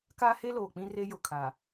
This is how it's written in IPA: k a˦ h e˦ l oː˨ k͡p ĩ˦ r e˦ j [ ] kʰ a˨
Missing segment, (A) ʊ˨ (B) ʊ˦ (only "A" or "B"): A